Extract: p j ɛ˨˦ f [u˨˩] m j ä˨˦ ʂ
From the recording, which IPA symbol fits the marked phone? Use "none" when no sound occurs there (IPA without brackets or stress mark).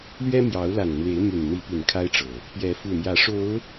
u˨˩